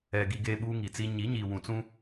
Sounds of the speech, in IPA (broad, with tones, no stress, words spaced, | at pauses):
ɛ˨ ɡi˨ɡeː˨ ɓuː˦ŋi˨t͡si˦ ɲi˨˦ɲi˨ wũ˨t͡sũ˦